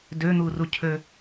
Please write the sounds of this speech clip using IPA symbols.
d ø n̪ u r u cʰ ø

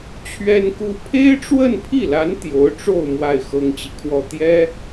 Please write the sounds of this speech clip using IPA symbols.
t͡ɕʰ ɥ ɛ˥ n k u˥ pʰ e˥ ɪ̯ ʈ͡ʂ w ə˥˧ n pʰ i˥˩ l a˧˥ n t̪ j o˧˥ ʊ̯ ʈ͡ʂ o˥˧ ʊ̯ m w a˥˩ ɪ̯ x ɤ˥ ŋ t͡ɕ i˨ kʰ w ɔ˥˩ t̪ j ɛ˥

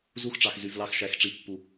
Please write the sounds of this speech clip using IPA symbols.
z u˧ x ʈ͡ʂ ɑ˨ x z y˨ v l ɑ˧ x ʃ æ˨˦ x ʈ͡ʂ i˨˦ pː u˨

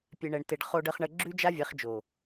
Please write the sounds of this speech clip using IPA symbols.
pʲ e˨ ɳ ɛ˨ ɳ t e˨ ɖ χ o˨ ɖ ə˨ χ ɳ ə˨ ɡ͡ǁ ʉ˦ d͡ʒ a˦ vʲ ɛ˨˦ χ d͡ʒ o˨

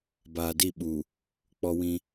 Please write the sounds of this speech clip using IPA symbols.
b aː˨ d i˦˨ ɓ u˨ | k͡p ɔ˦ w ĩ˦

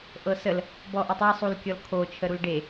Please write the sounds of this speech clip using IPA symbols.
ʔ ɤ s ə l | b ɔ ʔ e tˤ e sˤ u l kʲ ɔ l kʰ o t͡ʃʰ ə ɾ u l ɖ e

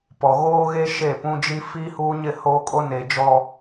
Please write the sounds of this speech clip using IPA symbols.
p ɔ˨ ɣ oː˦ ɣ e˦ ʃ e˦˨ p ũ˦ d͡ʒ i˦ f iː˦ h uː˦ ɲ ɪ˦˨ h oː˦ kʼ o˦ n eː˨ d͡ʒ ɔ˦

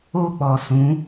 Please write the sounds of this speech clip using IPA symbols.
o˦ k͡p ɔ˨ s ũ˨˦

